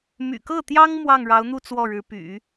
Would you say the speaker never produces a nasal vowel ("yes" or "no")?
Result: yes